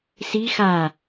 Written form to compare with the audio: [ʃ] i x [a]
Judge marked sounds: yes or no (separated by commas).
no, yes